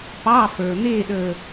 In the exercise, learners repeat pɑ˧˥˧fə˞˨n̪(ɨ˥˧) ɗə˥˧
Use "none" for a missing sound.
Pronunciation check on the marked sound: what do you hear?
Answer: e˥˧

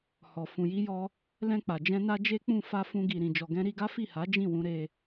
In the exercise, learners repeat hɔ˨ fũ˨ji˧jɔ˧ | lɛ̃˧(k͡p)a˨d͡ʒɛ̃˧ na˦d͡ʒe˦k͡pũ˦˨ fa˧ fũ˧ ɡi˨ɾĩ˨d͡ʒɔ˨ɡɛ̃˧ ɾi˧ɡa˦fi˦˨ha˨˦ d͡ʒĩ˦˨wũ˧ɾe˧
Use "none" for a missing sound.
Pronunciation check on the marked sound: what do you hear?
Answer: k͡p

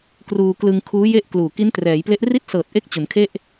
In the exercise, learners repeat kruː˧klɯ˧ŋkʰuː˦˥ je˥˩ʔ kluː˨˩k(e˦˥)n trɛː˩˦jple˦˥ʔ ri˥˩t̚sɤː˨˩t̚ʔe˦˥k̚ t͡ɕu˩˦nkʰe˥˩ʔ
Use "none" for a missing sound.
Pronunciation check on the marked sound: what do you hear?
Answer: i˦˥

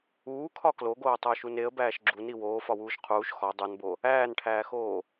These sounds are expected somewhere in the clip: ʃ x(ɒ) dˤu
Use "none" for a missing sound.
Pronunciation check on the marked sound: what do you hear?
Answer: ɒ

